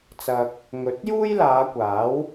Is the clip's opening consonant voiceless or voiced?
voiceless